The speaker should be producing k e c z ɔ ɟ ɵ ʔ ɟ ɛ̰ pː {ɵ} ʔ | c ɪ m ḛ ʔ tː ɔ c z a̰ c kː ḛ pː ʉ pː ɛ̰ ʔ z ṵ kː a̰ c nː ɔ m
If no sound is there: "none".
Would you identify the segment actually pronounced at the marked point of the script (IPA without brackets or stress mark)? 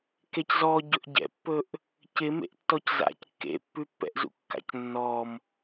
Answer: ɵ